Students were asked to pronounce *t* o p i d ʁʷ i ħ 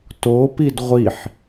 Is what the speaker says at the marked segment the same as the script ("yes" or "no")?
yes